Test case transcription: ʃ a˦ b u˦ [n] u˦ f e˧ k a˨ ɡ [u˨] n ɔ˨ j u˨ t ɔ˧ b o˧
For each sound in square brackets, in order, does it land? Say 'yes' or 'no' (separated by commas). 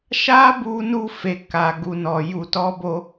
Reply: yes, yes